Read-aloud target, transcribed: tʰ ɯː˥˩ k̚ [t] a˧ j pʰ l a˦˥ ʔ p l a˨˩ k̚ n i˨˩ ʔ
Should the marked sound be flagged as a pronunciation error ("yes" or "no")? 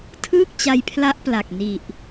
yes